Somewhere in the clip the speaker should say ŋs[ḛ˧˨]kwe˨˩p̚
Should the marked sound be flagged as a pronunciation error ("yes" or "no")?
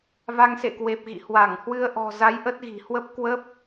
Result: no